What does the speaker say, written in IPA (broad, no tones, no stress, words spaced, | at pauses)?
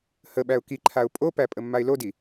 həɓæʊ̯ kiǃʰaʊ̯ pʼopæ pʼəmːaɪ̯lodi